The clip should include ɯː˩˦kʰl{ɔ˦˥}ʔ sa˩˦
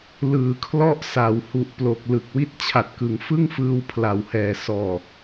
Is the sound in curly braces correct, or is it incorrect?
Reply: correct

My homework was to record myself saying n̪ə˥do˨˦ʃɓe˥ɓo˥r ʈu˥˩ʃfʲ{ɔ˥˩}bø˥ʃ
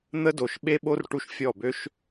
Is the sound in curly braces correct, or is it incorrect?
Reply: correct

